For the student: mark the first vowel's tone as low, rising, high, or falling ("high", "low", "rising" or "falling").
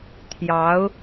rising